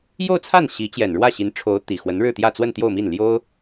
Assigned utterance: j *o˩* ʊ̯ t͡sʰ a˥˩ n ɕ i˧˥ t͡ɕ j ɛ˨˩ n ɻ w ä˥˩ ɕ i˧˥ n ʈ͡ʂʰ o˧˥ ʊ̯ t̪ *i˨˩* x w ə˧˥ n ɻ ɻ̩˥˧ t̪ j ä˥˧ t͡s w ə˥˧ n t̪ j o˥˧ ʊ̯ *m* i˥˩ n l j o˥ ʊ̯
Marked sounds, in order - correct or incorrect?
incorrect: o˥˧, correct, correct

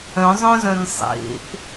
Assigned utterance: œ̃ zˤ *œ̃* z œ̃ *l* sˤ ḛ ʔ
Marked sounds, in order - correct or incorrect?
correct, incorrect: n

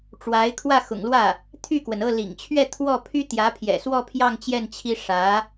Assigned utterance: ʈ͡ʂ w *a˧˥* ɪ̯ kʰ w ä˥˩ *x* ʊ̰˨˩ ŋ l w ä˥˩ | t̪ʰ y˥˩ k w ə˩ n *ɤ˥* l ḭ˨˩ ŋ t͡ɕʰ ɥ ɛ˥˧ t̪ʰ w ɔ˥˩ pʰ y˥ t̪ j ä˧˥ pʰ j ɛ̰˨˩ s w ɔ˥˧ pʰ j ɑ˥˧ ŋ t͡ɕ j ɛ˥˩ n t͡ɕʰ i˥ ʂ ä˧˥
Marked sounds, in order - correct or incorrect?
correct, correct, incorrect: ɤ˥˩

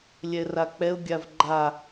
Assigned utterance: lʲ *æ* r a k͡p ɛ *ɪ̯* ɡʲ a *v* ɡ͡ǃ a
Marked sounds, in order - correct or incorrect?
incorrect: ɛ, incorrect: ʊ̯, correct

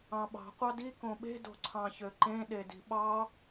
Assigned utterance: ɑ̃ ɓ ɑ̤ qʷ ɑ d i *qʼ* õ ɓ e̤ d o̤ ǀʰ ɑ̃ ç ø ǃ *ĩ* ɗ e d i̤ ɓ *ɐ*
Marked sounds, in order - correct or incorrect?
incorrect: k, incorrect: ẽ, incorrect: ɑ

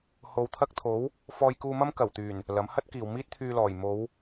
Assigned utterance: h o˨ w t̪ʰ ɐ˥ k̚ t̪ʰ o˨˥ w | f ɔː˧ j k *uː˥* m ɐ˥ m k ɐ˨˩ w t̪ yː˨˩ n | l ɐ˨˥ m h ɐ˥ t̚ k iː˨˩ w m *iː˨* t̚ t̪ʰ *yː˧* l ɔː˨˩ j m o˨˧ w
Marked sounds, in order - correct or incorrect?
incorrect: uː˧, incorrect: iː˥, correct

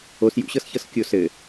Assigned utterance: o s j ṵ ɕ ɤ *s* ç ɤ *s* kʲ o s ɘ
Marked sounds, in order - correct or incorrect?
correct, correct

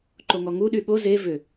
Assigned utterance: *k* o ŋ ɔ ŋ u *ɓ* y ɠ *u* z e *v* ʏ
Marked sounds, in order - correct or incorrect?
incorrect: ǃ, incorrect: ɗ, incorrect: o, correct

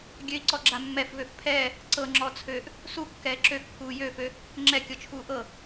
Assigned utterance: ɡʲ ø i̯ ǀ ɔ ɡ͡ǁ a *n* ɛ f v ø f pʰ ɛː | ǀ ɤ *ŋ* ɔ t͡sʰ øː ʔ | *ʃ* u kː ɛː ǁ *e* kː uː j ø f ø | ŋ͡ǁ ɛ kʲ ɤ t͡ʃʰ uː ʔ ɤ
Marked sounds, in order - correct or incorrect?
incorrect: mː, incorrect: ŋ͡ǁ, incorrect: s, incorrect: ø

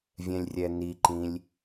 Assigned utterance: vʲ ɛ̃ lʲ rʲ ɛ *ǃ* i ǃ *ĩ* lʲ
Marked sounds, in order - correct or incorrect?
incorrect: n, correct

